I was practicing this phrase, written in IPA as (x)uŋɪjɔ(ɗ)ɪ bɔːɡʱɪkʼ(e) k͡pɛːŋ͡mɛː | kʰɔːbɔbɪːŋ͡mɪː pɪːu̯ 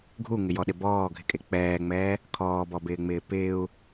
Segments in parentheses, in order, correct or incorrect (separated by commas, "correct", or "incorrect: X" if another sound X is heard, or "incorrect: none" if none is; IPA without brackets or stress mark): incorrect: ɡʱ, correct, correct